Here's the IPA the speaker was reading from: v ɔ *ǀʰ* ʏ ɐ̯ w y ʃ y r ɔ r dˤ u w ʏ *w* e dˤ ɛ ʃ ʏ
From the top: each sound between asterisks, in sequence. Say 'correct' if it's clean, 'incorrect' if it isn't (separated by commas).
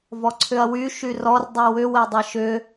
correct, correct